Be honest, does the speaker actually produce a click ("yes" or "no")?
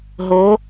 no